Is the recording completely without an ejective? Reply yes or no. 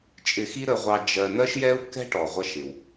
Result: no